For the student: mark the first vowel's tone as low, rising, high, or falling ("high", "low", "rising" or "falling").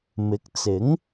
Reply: rising